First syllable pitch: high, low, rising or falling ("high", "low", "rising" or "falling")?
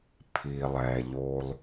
low